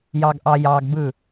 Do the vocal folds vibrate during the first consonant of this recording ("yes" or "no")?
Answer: yes